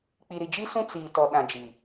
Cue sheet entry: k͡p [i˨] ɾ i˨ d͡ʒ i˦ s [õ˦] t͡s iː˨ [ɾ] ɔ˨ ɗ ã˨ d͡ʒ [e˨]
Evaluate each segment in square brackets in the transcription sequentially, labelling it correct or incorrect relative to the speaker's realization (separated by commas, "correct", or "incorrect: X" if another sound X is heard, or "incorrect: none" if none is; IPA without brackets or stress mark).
correct, incorrect: ũ˦, incorrect: t, incorrect: i˨